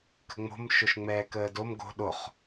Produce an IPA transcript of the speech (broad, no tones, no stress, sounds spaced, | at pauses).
k ə̤ ŋ͡m o̤ m ʃ o ʃ ŋ͡m ɛː k əː d o m ɡ o̤ ɗ o χ